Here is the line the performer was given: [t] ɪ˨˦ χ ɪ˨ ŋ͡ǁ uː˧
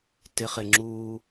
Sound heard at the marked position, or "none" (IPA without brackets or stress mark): t